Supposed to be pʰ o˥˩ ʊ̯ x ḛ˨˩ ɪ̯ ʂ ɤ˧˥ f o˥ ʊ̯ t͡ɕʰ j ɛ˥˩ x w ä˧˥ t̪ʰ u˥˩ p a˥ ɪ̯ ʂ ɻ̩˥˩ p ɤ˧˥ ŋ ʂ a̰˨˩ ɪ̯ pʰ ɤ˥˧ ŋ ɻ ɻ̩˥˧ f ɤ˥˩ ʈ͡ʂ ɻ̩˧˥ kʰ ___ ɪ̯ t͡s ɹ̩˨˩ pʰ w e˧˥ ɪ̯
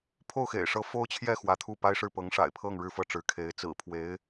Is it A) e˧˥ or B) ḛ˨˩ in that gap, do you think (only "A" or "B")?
A